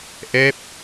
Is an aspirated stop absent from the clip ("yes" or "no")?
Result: yes